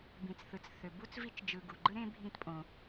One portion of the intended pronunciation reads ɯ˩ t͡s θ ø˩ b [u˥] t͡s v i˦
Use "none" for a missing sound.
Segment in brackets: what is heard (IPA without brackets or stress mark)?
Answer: u˥